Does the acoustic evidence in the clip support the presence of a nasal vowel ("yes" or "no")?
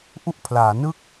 no